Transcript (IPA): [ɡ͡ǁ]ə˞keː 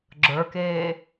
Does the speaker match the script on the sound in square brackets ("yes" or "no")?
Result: yes